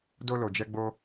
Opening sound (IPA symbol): d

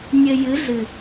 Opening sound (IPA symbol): nʲ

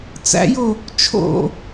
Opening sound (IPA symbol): t͡s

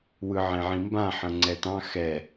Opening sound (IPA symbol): w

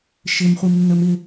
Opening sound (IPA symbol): ʃ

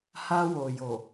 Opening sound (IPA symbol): h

